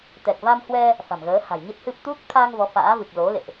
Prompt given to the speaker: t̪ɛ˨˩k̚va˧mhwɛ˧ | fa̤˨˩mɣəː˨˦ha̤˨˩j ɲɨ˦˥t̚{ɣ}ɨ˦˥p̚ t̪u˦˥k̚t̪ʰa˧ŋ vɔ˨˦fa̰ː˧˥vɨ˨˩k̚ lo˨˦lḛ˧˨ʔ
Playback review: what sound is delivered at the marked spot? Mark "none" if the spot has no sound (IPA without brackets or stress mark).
h